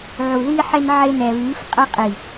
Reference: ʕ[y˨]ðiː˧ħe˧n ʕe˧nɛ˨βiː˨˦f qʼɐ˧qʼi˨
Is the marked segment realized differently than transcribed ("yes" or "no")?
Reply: yes